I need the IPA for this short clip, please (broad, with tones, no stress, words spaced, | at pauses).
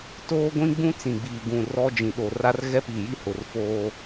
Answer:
toː˦ɡʷĩ˦ɡ͡bũ˦ t͡sĩ˨ɡ͡biː˨ ɡũ˨ rɔ˦ d͡ʒĩ˨ɗo˨ra˦r ɣɛ˦piː˨ji˦ hʊ˨rfoː˦